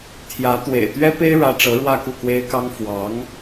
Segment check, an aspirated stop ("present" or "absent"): present